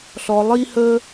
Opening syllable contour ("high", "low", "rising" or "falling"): low